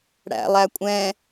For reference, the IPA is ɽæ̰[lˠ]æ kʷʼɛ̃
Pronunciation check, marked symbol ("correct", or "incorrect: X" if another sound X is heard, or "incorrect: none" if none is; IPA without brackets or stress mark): correct